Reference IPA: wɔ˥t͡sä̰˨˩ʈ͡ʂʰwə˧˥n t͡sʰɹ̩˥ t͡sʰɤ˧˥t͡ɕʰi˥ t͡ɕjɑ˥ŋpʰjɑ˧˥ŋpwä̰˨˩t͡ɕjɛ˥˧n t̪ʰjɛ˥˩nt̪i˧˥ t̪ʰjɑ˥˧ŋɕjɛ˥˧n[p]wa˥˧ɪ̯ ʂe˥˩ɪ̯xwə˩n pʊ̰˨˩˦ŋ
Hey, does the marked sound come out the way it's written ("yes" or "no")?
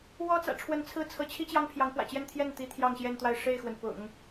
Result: no